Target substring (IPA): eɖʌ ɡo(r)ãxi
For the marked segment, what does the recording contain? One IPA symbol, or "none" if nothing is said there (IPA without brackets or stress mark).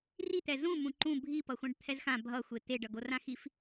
r